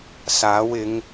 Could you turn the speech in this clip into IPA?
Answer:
s aː˨˥ w ɪ˨˧ ŋ

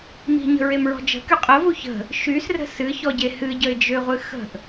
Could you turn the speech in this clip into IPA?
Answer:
m i̤ ɲ ə̤ ɹ e m ɹ ɔ̤ d͡ʒ ə̤ k y qʼ ə v u ç ə̤ | ʃ y s r ə̤ s ɨ ç ɔ ɟ e h ɨ ɟ ə ɪ̯ d͡ʒ ø ʁʷ ɨ x ə̤ ʔ

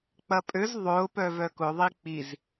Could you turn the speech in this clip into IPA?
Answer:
k͡p ɐ pʼ ø z ðˤ ʊː p œ v œ k ʊ ðˤ i k͡p i z

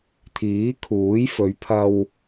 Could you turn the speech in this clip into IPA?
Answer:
t̪ʰ iː˨˥ kʰ uː˨˥ j f ɵ˨˧ ɥ pʰ ɐ˧ w

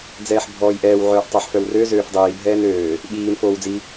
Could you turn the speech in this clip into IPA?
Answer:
d͡z ɛː ħ bʱ ɔː j ʔ ɛː w ʕ œː ʔ tˤ œ ħ f œ w r ø z øː f dˤ iː bʱ ɛː n øː | ɓ iː n f oː w d͡z i

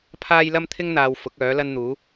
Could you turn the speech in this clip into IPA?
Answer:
pʰ aː˥ j l ɐ˥ m t̪ʰ ɪ˥ ŋ n̪ aː˨ w f ʊ˨˥ k̚ œː˨˥ l ɐ˥ n n̪ uː˨˥

